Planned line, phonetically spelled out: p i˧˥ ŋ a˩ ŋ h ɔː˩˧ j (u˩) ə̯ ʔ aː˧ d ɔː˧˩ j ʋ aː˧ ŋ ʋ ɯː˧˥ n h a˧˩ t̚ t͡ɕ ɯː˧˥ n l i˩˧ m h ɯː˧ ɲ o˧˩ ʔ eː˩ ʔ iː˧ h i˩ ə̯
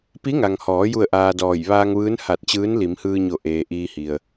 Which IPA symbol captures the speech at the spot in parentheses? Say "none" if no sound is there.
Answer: u˥˨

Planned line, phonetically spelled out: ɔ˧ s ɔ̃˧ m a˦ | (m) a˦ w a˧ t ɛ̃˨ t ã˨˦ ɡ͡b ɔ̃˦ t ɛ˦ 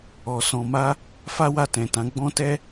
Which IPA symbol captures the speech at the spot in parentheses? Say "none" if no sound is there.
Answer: f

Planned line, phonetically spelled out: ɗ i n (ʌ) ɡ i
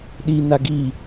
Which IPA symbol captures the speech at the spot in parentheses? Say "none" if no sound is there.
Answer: a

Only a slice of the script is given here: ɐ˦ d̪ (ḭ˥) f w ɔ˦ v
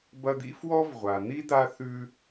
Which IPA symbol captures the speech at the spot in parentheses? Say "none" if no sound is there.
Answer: ḭ˥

